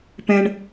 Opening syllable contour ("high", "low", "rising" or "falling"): high